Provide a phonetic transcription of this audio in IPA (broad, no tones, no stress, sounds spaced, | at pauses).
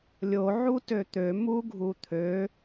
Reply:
lʲ o ʕ u t ø t̪ ø m u ɡʱ u t̪ʰ ø